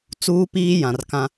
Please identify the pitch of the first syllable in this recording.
high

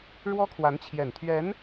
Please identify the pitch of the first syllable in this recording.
high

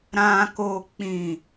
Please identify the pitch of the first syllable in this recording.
high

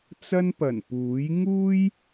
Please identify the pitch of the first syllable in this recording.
high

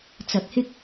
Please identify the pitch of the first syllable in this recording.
rising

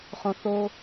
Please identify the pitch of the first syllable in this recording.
high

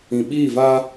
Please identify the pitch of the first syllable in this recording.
low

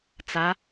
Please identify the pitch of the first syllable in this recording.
rising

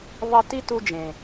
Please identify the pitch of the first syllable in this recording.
high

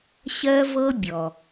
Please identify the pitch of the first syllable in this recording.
high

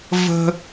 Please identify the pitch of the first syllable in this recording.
high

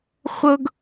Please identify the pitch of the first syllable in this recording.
high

